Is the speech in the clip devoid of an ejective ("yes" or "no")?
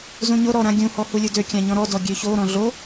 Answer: yes